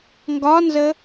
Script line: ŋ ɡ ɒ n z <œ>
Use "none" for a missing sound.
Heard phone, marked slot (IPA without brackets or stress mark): ə